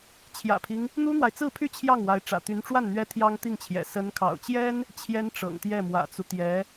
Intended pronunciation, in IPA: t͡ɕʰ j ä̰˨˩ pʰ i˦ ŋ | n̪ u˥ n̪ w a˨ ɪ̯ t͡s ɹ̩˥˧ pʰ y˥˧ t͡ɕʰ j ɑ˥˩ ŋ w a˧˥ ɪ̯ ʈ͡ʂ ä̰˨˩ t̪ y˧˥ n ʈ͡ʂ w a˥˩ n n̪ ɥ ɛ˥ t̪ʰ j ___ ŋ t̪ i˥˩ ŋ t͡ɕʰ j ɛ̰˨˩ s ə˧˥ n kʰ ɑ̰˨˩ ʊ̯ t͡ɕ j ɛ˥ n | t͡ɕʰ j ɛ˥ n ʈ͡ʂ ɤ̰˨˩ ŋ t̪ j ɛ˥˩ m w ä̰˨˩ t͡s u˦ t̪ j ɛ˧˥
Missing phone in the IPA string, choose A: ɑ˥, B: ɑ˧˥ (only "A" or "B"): A